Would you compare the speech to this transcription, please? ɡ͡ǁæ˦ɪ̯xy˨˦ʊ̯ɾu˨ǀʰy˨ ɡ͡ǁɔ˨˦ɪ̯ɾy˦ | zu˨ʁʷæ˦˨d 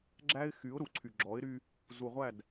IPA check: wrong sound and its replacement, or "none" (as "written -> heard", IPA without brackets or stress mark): none